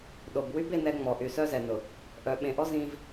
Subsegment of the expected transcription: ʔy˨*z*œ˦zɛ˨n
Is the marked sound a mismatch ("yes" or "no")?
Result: yes